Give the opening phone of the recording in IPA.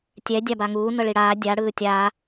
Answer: tʲ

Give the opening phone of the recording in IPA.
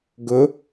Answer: ɡ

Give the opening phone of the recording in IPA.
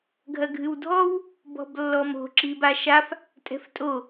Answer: ɡʱ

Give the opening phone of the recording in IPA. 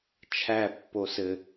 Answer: t͡ʃʰ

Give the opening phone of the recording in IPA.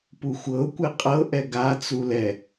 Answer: p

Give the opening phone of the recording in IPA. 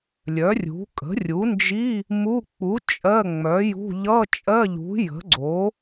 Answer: lʲ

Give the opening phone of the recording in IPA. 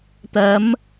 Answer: t̪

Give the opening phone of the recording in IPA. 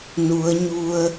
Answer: n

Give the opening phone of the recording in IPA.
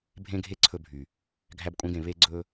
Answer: bʱ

